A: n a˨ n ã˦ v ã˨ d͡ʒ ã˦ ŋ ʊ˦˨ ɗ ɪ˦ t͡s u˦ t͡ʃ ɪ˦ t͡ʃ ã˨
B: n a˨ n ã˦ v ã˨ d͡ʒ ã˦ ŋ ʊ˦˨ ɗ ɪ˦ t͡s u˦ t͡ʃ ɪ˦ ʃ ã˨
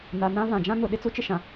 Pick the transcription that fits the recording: B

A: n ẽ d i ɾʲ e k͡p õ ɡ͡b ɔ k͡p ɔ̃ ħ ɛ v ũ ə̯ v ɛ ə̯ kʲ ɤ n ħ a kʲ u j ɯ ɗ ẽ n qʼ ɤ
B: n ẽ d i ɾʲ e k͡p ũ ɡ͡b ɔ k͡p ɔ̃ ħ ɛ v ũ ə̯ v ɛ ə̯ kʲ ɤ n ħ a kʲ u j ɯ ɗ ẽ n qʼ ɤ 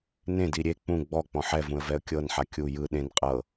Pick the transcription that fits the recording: B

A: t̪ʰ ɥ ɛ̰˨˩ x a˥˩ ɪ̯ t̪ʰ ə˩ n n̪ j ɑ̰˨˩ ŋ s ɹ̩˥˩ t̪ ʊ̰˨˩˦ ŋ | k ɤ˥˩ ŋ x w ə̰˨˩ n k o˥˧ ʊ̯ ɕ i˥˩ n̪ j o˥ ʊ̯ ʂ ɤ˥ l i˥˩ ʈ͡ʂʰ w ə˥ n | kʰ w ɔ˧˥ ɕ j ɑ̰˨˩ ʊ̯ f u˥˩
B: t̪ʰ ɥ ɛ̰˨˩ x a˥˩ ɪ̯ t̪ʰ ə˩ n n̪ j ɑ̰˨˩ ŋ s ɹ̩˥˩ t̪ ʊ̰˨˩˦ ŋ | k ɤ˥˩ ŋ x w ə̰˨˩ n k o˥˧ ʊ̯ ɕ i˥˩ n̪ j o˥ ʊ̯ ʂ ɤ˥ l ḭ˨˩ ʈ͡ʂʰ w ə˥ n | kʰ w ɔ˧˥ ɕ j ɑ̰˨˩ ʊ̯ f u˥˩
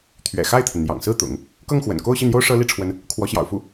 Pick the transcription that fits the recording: A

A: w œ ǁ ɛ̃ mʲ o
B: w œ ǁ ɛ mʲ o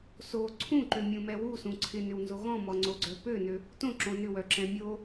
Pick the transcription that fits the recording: A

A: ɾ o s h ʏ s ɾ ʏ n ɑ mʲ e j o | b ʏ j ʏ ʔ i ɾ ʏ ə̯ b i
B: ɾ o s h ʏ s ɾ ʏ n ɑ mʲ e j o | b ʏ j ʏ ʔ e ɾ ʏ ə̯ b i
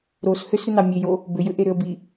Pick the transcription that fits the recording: B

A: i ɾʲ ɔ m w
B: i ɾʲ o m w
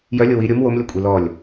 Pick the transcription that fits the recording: B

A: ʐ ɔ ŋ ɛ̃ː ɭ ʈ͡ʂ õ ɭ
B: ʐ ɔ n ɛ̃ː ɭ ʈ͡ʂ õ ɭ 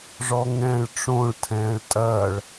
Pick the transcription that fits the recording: A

